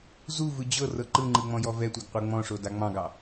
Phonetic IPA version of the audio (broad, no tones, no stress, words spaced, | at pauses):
zuvɯ d͡ʑɤ rɤǃɯŋ͡ǃɯ ŋ͡mɔ̃jɔvɛtʷɛɡ qʷɤŋ͡mɔ̃ʂo daŋ͡mɑ̃ɡɑ